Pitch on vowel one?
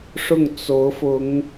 falling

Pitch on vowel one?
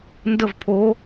falling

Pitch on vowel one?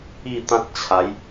falling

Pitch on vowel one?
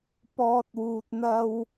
low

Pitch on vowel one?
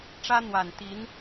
high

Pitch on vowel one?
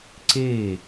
falling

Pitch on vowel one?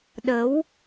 rising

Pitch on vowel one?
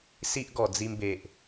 high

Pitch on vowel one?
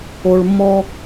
low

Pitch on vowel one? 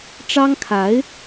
high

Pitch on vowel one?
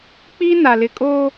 high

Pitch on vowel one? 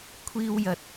high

